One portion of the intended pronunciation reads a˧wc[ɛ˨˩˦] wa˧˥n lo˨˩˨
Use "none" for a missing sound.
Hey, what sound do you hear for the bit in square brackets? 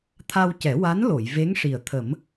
ɛ˨˩˦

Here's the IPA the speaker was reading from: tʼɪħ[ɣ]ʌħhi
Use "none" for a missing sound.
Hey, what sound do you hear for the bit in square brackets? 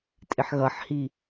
ɣ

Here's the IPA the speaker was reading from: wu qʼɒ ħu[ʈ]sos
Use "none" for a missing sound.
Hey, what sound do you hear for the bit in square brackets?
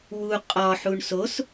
ɳ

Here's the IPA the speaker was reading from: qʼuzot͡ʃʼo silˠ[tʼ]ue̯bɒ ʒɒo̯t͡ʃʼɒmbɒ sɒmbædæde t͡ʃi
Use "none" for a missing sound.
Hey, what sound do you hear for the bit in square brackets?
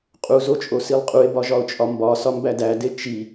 qʼ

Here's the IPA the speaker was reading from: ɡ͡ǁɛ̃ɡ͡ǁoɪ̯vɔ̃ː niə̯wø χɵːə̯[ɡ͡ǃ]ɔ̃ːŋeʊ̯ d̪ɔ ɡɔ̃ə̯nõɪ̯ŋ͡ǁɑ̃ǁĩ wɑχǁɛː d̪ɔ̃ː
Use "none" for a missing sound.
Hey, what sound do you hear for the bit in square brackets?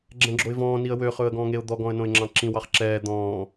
ɡ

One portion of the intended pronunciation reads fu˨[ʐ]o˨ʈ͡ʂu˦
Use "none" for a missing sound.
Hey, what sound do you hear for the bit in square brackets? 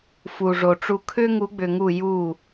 ʐ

